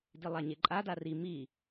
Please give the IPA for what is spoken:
dilˠaɲeǃʼa dari mi

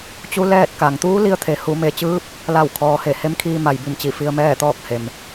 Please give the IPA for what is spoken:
t͡ɕu˧ lɛː˥˨t̚ka˩ŋ t̪uː˧˥li˧ə̯t̪ʰe˩˧ hu˩˧me˩˧t͡ɕɯː˧˥p̚ | la˧˩w kʰɔː˩he˧˩ he˧˥mkʰiː˧ma˩jbi˧˩m t͡ɕi˧˩fi˧ə̯mɛː˥˨t̪ɔː˥˨k̚ he˩m

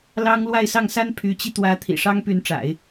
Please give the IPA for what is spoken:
lɑ˥ŋ lwa˥˧ɪ̯sɑ˥˩ŋsa˥n pʰy˧˥t͡ɕi˧t̪wä˧˥ t̪ʰḭ˨˩ʂɑ˥ŋpy˧˥nʈ͡ʂa̰˨˩˦ɪ̯

